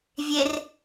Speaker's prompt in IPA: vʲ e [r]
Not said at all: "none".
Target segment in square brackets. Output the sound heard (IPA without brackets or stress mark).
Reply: r